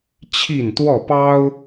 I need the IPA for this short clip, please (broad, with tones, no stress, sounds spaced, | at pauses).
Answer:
t͡ɕʰ i˥˨ n t̪ w ɔ˥˨ p ɑ˦ ʊ̯